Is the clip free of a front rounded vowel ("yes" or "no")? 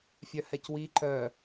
no